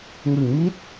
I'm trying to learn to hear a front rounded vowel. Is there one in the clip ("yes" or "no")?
no